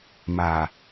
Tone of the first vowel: low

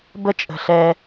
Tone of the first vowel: high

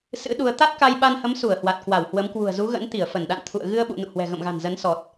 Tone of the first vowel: rising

